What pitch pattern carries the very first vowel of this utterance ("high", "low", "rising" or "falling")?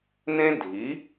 high